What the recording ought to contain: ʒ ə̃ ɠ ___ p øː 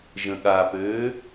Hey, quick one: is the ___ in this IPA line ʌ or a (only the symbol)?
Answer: a